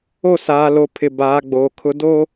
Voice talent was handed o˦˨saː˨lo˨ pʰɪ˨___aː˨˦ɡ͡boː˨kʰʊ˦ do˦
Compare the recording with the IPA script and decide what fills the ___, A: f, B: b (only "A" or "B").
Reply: B